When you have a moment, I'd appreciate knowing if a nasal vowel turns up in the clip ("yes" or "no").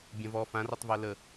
yes